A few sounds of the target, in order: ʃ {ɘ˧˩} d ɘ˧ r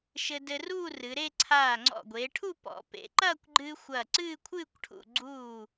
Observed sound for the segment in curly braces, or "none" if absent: ɘ˧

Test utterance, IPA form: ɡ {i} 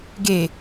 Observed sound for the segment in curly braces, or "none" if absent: e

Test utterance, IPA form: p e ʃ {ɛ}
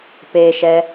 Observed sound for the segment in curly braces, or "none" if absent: ɛ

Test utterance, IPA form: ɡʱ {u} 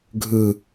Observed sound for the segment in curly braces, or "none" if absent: ɯ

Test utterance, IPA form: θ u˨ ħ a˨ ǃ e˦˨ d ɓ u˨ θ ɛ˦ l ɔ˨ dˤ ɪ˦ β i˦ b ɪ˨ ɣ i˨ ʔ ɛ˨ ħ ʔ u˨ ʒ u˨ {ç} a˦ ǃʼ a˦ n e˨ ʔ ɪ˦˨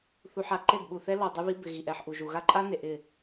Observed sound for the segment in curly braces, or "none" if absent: ɣ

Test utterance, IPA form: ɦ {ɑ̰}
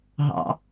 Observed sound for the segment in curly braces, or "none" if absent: ɑ̰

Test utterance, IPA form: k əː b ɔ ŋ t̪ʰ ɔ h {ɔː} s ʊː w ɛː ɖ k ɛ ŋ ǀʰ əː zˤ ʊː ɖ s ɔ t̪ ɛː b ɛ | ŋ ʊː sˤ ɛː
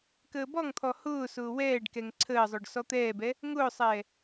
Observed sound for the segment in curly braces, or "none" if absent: ʊː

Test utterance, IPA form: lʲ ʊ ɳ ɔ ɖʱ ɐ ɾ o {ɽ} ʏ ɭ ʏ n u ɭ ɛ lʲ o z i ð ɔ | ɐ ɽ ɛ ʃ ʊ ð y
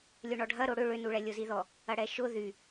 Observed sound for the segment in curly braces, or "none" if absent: ɽ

